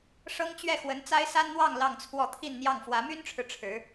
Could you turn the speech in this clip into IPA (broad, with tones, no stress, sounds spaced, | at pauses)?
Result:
ʂ ɤ˥ ŋ t͡ɕ ɥ ɛ˥˩ x w ə˧˥ n t͡s a˥ ɪ̯ s a˥ n n̪ w ɑ˥˧ ŋ l ɑ˥˧ ŋ t͡sʰ w ɔ˥˧ t̪ʰ i˥˧ n n̪ j ɑ˥˩ ŋ f w ä˧˥ m y˥ n ʈ͡ʂʰ ɻ̩˨ ʈ͡ʂʰ ɻ̩˧˥